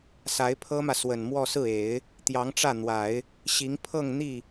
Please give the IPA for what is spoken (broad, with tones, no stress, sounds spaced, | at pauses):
s a˧˥ ɪ̯ pʰ ɤ˥ m ä˨ s w ə˨˩ n m w ɔ˥˧ s ɹ̩˥˩ e˨˩˦ ɪ̯ | t̪ j ɑ˧˥ ŋ ʈ͡ʂ ä˥˩ n̪ w a˨˩˦ ɪ̯ | ɕ i˧˥ ŋ pʰ ɤ˥˧ ŋ n̪ i˥˩